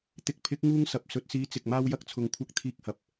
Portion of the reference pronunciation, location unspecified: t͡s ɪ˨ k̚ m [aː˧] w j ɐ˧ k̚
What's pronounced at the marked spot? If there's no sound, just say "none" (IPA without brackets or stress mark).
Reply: aː˧